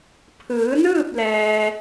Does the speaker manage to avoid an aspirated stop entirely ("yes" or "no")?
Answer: no